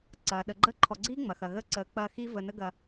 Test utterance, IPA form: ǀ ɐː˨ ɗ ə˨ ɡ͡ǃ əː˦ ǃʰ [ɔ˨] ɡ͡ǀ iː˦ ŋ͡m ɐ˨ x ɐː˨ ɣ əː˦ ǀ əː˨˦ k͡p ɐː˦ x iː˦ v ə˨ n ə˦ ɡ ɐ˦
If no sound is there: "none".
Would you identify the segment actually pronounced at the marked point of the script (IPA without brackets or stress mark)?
ɔ˨